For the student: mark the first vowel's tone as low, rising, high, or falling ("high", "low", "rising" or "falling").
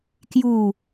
falling